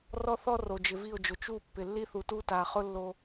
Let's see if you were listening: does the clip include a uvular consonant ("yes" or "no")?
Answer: yes